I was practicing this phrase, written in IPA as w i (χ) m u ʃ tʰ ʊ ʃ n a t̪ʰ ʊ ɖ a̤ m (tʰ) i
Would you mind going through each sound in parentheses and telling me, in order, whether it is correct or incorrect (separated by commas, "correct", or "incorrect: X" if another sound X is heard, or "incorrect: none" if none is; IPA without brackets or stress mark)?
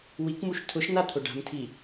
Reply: incorrect: k, correct